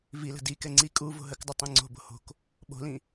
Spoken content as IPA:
vilə̤ dikɛ ŋ͡ǀi kʼu vo̤ɦəkdˤʉ tˤĩŋ͡ǀo̤bo̤ ho̤k | ɓo̤lĩ

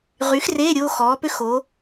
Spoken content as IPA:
ʁy˩˥xreː˧˥˧ ɾʲo˧˥˧xɔː˩˥pø˥x o˩˥

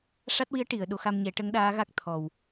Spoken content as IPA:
ʂa˦˥t̚wi˧˥ə̯ ʈi˨˩˨ə̯ɗo˨˩˦xa˧mɲɛ˨˩˦ ʈə˧˥ŋɗaː˧˥ɣa˦˥k̚ t̪ʰɔ˨˩w

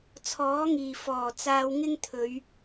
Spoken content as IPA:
t͡sʰɔː˨˥ŋiː˨˩fɔː˨˩ t͡saː˧wŋɪ˥ŋ t̪ʰɵ˨˧ɥ

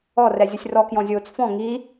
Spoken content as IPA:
ɔrɛzʲʊsʲ rɔkjɔ̃zʲoːt͡s fɔ̃ ŋi

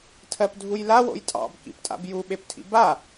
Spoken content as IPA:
tʰɜpdʱujla wo̰jtʼɑ̰b kḭptʼa̰bju ɓeptʰḭba

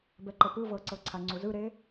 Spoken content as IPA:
bɛǃɤpɯ vɤǀɤǀʰa ŋ͡ǀuzɯɾe

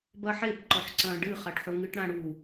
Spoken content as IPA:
bɐħebǃɔħǀɐ̃ː ɖɨχaʈħo ŋɨʈɽãɽu

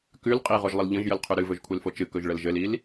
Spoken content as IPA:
kʉl qʼiʁoʒlˠəl ʎə̃ʒjəlqʰʉ ɾɨvɵʒ kʷʰelfot͡ʃɨ kɵʒɭəlʒɘlil

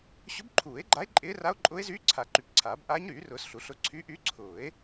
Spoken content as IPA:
ɕʊ˧˥bǃʰuː˨˩˦e̯ɡ͡ǃa˧˥e̯ ǃʼɪː˧˥ra˧˥o̯ǃʼʊː˧˥e̯zyː˧˥ ǀʰa˨˩˦ ǃy˨˩˦pǀʰaː˨˩˦b ʔaː˧˥ɲɾyː˨˩˦rʊː˨˩˦s ɬu˨˩˦ɬʊ˧˥ ǀʰy˧˥ʔy˧˥ǀʰʊː˨˩˦e̯

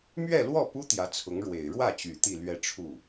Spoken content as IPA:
mɥɛ˥˧lwɔ˥˩pu˥ t̪jä˧˥t͡sʰʊ˧˥ŋ ɻwe˨˩ɪ̯ ɻwä˥˩t͡ɕy˨˩ t̪i˥˧lɥɛ˥˧ʈ͡ʂʰu˥˩

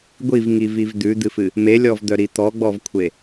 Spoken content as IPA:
ɡʷivŋiviv d̪ʉd̪ɨfɨ | melʲɔvd̪œɾi t̪ɔɡ͡bɔvkʷʰe

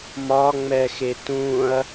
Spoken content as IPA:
mɒŋ͡mɛxe tũɐ̯

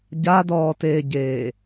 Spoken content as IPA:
ɟadɔːteːɟeː

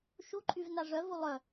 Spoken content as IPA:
ʃuǃʼyv naʐœvu lˠœ

